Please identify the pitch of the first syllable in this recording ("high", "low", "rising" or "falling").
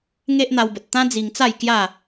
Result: high